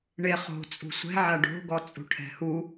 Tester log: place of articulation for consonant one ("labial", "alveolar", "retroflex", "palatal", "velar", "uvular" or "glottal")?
retroflex